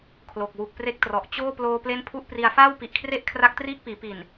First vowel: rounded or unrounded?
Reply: rounded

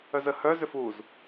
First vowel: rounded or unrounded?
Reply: rounded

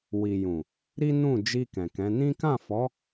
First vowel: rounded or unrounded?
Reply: unrounded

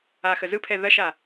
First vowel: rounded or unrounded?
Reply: unrounded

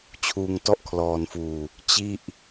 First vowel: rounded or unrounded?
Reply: rounded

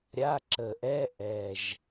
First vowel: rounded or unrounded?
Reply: unrounded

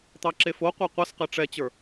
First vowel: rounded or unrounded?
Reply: unrounded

